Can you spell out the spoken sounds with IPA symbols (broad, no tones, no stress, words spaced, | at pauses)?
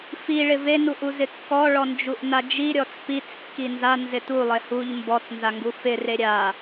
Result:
fiɭɪ venuʔuzɪ kːɔɭɔnd͡ʒuʔna d͡ʒiɾʲɔt͡s pit͡skːi nzanzɪ tulˠe huʎ mbɔt͡snzaŋɡu fɪre ɾʲa